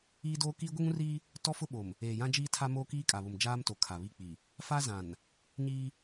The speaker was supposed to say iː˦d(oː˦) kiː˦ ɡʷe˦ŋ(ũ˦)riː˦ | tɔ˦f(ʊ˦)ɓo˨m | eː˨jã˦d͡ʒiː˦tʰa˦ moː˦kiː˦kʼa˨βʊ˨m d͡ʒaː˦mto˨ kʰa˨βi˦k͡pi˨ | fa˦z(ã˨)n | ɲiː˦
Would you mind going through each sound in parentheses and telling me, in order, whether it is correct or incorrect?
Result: correct, correct, correct, correct

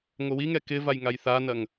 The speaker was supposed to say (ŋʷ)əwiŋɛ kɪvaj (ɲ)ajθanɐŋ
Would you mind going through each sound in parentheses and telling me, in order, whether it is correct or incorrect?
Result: correct, incorrect: ŋ

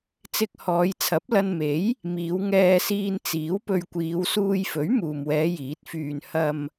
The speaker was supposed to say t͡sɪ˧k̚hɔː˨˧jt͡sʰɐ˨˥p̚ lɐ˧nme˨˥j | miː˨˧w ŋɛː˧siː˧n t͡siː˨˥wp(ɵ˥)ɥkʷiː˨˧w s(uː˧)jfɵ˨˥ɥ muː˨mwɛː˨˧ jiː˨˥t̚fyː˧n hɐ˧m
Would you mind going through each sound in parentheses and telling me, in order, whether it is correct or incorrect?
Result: incorrect: ɵ˧, correct

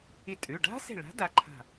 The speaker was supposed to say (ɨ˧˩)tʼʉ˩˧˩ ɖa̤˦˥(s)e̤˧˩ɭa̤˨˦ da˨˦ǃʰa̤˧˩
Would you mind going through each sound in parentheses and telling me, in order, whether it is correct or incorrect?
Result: incorrect: i˧˩, correct

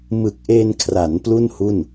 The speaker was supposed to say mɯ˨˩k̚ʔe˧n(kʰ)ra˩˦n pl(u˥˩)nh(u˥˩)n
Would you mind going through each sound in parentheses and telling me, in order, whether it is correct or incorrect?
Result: correct, correct, correct

